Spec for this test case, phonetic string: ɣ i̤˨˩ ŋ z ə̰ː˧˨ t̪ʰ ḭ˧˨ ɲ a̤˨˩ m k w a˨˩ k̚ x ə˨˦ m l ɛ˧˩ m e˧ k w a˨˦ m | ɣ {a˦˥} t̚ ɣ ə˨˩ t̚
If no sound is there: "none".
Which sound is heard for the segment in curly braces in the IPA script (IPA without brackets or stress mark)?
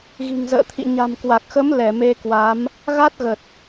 a˦˥